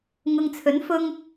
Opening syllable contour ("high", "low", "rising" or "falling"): low